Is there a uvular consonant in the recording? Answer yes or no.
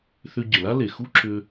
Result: no